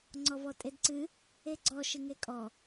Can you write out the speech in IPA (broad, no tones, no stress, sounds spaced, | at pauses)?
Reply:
ŋ͡ǀ ɔ v ɔ tʼ e d ǀ ɨ | e ɡ͡ǀ ɔ ʃ ɨ ŋ e kʼ ɔ